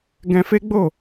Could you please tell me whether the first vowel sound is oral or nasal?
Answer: nasal